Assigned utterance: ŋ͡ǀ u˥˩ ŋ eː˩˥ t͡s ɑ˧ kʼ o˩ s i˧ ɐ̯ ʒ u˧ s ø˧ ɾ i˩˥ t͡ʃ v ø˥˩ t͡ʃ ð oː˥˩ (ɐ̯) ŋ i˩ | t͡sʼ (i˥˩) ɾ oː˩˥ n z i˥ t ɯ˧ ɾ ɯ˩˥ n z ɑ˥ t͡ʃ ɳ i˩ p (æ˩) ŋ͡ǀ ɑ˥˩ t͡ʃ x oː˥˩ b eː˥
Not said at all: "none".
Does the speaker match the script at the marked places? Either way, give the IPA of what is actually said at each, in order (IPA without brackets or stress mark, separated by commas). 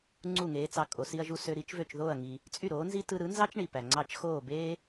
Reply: ɐ̯, y˥˩, æ˩